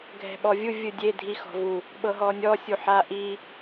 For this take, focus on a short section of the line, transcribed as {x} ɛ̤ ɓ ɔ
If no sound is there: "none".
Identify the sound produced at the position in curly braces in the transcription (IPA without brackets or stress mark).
ɡʱ